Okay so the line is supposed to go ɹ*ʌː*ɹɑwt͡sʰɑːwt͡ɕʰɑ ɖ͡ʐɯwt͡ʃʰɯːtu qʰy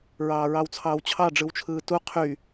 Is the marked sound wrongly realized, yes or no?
yes